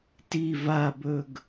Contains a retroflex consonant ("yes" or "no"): no